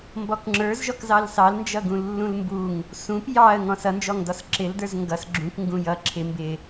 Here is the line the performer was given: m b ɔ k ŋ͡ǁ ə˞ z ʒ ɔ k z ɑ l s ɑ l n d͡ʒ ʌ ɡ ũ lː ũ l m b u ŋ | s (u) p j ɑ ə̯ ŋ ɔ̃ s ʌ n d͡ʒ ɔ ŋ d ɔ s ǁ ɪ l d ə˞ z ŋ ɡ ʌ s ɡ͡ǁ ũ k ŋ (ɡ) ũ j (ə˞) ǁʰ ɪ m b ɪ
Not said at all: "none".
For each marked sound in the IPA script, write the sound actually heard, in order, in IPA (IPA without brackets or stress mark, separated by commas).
ũ, ɡ, ʌ